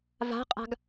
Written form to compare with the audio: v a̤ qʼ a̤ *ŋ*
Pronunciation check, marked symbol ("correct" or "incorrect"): incorrect